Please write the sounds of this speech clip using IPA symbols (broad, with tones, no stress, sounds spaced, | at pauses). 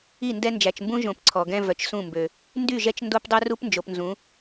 i˦˨ n d ɛ˦ n d͡ʒ æ˨ t͡ʃ m b ũ˦ ʒ õ˨ p ǀʰ ɔ˨ ɡ ɛ̃˦ v œ˨ t͡ʃ s ũ˦˨ m b ø˨ | n d y˦˨ ʒ ɛ˦ t͡ʃ n d o˦ p dˤ ø˦ r u˦ p n d͡ʒ o˨ p n z ũ˨˦